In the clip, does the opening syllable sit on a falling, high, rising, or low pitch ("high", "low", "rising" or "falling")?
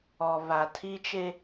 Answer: low